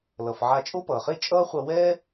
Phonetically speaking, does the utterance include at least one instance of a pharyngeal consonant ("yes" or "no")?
yes